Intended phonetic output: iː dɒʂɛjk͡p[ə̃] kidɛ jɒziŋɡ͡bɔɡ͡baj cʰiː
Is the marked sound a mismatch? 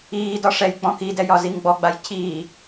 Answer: yes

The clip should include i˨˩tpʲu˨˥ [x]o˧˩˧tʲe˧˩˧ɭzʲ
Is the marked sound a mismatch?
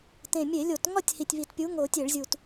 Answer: yes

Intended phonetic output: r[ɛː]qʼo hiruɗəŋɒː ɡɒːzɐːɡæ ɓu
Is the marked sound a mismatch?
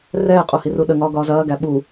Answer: no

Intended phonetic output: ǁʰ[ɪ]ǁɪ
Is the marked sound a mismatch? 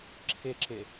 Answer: no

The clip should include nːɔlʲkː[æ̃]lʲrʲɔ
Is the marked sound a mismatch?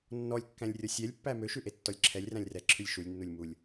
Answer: no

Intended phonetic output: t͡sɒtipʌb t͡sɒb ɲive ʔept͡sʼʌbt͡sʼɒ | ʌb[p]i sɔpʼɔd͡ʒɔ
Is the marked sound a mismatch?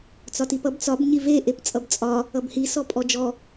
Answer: yes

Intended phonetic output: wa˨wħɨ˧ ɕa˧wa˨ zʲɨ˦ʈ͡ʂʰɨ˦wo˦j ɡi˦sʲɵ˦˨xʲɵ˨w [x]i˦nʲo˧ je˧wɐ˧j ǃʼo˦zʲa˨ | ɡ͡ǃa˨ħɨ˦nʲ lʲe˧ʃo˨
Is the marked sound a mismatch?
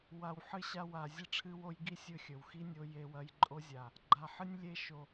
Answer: no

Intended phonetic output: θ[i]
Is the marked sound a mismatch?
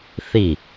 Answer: no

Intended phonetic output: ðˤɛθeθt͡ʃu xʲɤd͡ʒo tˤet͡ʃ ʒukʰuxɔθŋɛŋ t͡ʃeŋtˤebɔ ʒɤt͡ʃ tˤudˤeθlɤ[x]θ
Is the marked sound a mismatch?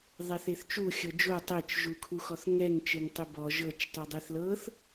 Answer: yes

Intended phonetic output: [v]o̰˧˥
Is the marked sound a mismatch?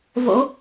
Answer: no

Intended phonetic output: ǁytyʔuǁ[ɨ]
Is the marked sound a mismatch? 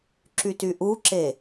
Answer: yes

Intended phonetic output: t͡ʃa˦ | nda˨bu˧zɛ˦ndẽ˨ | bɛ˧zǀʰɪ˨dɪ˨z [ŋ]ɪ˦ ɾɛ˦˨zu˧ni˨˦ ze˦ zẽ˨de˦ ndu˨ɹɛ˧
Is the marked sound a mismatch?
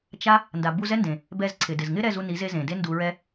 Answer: no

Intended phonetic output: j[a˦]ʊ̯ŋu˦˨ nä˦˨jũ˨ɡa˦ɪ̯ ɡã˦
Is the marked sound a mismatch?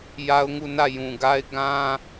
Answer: no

